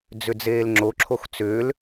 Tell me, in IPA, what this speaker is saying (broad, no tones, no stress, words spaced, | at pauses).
d͡zʏd͡zeːlŋ͡ǁoǁʰox t͡sʏːl